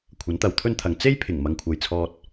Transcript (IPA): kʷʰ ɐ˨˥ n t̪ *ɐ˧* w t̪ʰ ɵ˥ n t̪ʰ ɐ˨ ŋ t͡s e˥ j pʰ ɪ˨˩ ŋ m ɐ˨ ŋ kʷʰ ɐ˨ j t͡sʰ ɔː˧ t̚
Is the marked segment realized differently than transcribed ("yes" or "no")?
yes